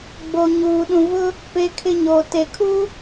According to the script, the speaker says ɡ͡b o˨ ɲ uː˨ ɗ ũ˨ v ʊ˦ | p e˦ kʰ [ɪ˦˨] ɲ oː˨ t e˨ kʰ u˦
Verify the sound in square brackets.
incorrect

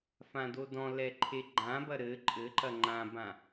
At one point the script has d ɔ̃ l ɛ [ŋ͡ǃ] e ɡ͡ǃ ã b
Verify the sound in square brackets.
incorrect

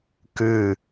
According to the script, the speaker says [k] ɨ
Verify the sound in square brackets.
correct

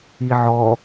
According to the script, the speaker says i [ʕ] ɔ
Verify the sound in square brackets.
correct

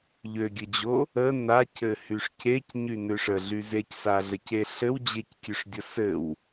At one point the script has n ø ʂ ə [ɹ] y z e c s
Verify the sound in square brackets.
incorrect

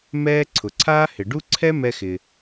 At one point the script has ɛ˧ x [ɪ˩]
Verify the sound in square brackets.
correct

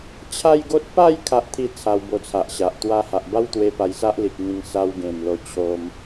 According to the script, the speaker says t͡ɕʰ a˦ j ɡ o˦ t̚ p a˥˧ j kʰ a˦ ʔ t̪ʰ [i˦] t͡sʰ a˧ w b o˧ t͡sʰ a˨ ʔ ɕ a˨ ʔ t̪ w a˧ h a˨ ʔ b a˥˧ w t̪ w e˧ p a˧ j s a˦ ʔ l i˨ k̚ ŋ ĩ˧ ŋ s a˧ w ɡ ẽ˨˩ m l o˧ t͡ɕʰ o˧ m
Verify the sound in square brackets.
correct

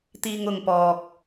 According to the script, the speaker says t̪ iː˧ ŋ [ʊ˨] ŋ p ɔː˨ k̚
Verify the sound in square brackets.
correct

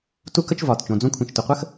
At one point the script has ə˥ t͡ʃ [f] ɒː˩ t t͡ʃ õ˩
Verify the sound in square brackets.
incorrect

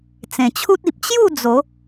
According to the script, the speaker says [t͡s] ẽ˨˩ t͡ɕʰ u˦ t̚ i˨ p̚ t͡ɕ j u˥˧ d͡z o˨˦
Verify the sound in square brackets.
correct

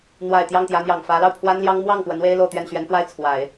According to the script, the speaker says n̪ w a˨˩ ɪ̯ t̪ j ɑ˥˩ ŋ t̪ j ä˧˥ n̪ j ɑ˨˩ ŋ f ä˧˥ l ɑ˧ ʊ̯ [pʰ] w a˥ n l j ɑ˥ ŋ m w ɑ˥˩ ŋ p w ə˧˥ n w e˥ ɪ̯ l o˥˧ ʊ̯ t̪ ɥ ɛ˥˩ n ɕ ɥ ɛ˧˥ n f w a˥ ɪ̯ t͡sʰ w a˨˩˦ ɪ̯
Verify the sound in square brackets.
correct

